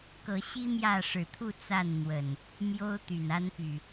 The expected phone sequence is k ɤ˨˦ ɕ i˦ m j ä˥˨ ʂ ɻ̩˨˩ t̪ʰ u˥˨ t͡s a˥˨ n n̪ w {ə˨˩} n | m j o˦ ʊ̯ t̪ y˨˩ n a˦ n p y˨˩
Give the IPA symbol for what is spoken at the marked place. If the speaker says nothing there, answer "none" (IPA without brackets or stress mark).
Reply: ə˨˩